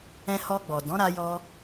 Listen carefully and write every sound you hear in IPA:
ɛ̃˧ h ɔ˧ ɡ͡b ɔ˨ d ɔ̃˨˦ ɾ a˧ j ɔ˧

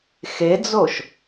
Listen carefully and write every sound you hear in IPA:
x e d͡z o ʃ

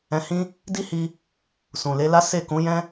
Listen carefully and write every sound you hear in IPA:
ɛ̃˧ h ĩ˦ | d i˦ h i˧ | s ũ˨ l e˨˦ l a˦ s e˦˨ k ũ˨˦ j ɛ̃˦

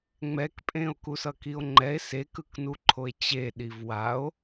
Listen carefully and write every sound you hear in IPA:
ŋ͡m ɛ k pʼ ẽ o̯ k u s ʌ k i o̯ ŋ͡ǃ ɛ e̯ s e k ɯ k n u ǃʰ o e̯ t͡ɕ e ɗ i v w a o̯

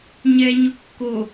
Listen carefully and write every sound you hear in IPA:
ɲ ɛ ɲ ʊ kː o

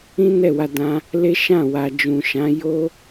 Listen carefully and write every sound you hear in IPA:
ĩ˦ n ɛ˦˨ w a˧ d ã˧ | l e˦ ʃ ã˦˨ w a˨ d͡ʒ ũ˨ ʃ ã˨˦ j o˦

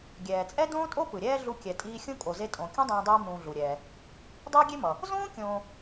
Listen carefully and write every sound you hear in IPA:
ɡʲ ɛː˩ t͡sʼ ɛ˥ d õː˥ tʼ o˥ p ɯ˩ ɾʲ ɛː˦ ɮ u˦ kʲ ɛ˨ tʼ iː˦ xʲ ũ˥ kʼ o˨ z e˦ tʼ õ˨ kʲ ũ˥ dˤ õː˦ dˤ iː˦ m ũː˨ ɮ u˩ ɾʲ ɛː˩ | dˤ iː˦ ɡʲ e˦ m ʌ˩ | z õː˥ kʲ õː˨

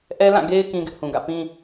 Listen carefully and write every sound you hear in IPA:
ʔ ɛ˦ l ã˦˨ ɡ e˦ ɪ̯ k ĩ˦ ɡ ɪ˦ ʔ h ũ˨ ɡ ä̰˦˨ p ĩ˦

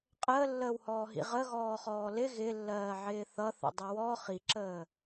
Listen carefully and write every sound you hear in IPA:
qʼ əː lː əː w h ɔː ɦ ḭ ʁ ə ɣ ɔː χ ɔː l ɪ ɣ ɪ lː ɜː ʕ ɪː θ ʌ θ ə̰ dˤ ɪ w ɔ χ i ǁ əː

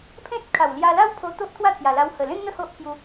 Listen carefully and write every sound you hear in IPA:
pʰ ẽ˦ t̚ kʰ a˨˩ w l j a˧ l a˦ w pʰ o˧ t̪ o˦ ʔ t̪ʰ w a˥˧ t̪ʰ j a˨˩ l a˧ w h ə˨˩ l ẽ˦ n n̪ ə˥˧ h o˦ ʔ pʰ j u˧

